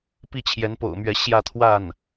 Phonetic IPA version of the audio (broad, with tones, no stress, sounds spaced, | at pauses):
p i˥˩ t͡ɕʰ j ɛ˧˥ n p o̰˨˩ ʊ̯ m ɥ ɛ˧˥ ɕ j ä˥˧ t̪ʰ w a˥˩ n